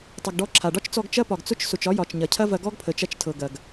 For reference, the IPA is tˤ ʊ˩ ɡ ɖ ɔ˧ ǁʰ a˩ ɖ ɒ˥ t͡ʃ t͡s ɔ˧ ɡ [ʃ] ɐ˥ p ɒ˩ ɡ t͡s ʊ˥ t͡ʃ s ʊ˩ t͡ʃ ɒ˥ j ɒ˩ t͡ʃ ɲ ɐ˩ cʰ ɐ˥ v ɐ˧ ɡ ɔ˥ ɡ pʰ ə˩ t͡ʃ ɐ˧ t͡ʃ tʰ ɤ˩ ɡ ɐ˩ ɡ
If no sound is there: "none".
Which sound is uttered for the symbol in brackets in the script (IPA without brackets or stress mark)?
t͡ʃ